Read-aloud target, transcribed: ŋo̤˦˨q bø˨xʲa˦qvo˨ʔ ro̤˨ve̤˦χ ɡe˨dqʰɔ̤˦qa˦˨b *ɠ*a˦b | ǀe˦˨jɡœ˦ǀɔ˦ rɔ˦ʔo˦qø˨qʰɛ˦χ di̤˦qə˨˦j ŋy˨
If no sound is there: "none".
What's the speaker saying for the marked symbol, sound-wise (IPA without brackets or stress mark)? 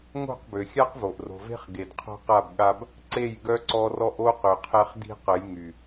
ɠ